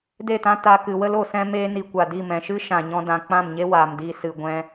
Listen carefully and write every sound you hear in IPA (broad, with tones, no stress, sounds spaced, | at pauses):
d e˦˨ t ã˦ t a˧ k ɨ˨ w ə˦ l o˨ s ɛ̃˧ m eː˦ n i˧ kʷ a˨ d i˦˨ m ɛ̃˨ ʃ ɨ˦ ʃ ã˨ ɲ ɔ̃˧ d ã˨ k͡p ã˦˨ m ɲ e˦ w aː˨ m d iː˧ s ɨ˨ ɡʷ ɛ̃˦